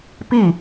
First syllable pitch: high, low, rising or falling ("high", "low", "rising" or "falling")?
falling